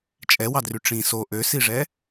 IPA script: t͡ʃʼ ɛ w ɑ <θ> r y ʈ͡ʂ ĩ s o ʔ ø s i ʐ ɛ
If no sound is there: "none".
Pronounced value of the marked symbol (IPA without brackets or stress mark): d